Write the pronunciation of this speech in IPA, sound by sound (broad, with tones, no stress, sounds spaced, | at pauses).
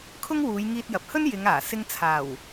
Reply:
kʰ ʊ˥ ŋ w uː˨˧ j ŋ iː˧ t̚ j ɐ˨ p̚ h ɵ˥ n j ɪ˨˧ ŋ aː˨˩ s ɪ˧ ŋ t͡sʰ aː˨˩ w